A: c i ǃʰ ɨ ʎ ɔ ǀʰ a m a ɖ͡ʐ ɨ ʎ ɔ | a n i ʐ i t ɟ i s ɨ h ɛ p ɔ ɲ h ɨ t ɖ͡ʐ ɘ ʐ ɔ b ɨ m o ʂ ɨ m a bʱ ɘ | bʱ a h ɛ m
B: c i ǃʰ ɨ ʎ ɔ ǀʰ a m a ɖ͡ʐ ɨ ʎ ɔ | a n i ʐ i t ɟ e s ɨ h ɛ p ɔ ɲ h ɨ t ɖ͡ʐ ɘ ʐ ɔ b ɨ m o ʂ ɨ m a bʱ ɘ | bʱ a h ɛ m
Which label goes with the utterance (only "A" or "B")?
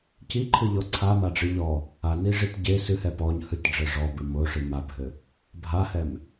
B